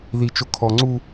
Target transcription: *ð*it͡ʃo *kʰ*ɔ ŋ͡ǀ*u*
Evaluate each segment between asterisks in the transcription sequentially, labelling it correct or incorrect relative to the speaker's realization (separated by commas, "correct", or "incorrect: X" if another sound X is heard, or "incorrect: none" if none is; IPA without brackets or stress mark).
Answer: correct, correct, correct